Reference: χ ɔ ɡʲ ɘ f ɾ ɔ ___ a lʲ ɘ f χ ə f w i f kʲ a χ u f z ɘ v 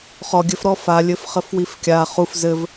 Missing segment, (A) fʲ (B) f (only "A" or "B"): B